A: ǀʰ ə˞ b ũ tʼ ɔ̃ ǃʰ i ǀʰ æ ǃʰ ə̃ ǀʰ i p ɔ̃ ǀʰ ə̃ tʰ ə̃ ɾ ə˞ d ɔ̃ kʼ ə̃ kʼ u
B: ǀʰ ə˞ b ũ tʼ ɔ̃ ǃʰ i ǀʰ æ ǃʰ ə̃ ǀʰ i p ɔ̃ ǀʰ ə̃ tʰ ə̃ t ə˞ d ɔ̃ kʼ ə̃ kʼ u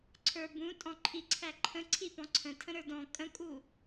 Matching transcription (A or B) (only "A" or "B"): A